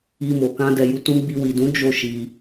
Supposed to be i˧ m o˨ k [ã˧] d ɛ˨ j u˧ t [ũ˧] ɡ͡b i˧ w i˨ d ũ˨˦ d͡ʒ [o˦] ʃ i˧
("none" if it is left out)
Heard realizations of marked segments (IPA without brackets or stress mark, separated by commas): ã˧, ũ˧, o˦